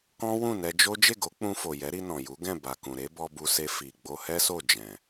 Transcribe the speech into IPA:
kɔ̃˦wũ˦˨nɛ˧d͡ʒo˦ d͡ʒe˦˨ɡo˨˦k͡pũ˧ fo˨jɛ˨˦ɾi˧ nɔ̃˨ju˨˦ ɡɛ̃˦˨ ba˨kũ˨ɾe˨˦ bɔ˧bu˧se˧ fi˨ ɡ͡bo˧hɛ˦so˦˨ d͡ʒɛ̃˨

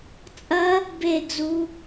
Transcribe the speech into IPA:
t͡sʼɐ | beɡzu

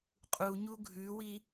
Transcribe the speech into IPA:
qʼuɲu ɡʱʉwi

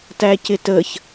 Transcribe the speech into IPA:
tæcɪtəç

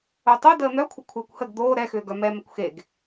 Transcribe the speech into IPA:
otˤo dəːn̪œkʷʰə kʷʰəːkʷhəɡ d̪oː ɾɛxʏːɡœ mɛmɛkʷ xeɡ

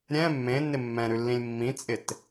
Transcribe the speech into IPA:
ɾʲɛ̃ mːẽnːɪ mːɛ̃ɾʉlːĩlʲ mːĩt͡sʼɪt

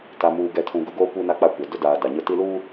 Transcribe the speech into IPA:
ta˨muː˨ ɡɛ˨tʰũ˨ ɡʊ˦ɡoː˦kʷi˦na˦ k͡pa˦kʷɛ˨ dʊ˦daː˨ da˨ɲʊ˦ ti˦luː˦

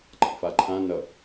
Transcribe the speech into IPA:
ǃa̰faǃʰã nʌ

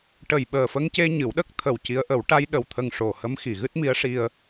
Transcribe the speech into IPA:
ʈə˨˩jɓəː˨˩fə˧ŋce˧ ɲɨ˨˩˦wɗə˦˥k̚ t̪ʰə˨˩w ci˧˥ə̯ʔə˨˩˦w ʈa˧jɗə˨˩wt̪ʰə˨˩ŋ ʂo˨˩hə˧˥m xi˨˩˨ɣɨ˦˥t̚mi˧˥ə̯ ʂi˧ə̯

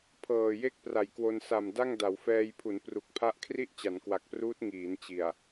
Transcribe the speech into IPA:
pʰɤː˨˩je˥˩k̚ pra˨˩jkwo˧n sa˨˩m da˥˩ŋ da˩˦wfɛː˧jpʰu˩˦n pru˨˩k̚pʰa˥˩ʔ kʰri˥˩ʔt͡ɕa˩˦n kwa˨˩k̚pruː˦˥t̚ ŋiː˩˦n t͡ɕi˨˩a̯

